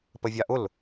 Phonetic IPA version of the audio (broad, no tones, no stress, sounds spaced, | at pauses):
p ə vʲ a ʔ ʊ l